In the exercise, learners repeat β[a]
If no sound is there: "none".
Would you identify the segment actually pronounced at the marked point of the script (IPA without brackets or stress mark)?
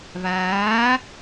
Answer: aː